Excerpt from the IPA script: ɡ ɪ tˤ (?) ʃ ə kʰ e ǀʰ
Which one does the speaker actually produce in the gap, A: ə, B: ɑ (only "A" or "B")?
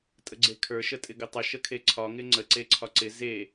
A